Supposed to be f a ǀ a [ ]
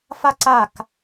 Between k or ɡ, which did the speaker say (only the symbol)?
k